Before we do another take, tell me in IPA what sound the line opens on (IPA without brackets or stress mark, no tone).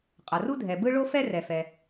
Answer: qʼ